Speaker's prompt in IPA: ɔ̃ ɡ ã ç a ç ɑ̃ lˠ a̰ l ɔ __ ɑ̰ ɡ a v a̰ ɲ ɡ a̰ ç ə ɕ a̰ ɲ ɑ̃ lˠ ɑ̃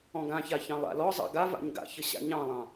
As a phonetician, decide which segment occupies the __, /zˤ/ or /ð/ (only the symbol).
zˤ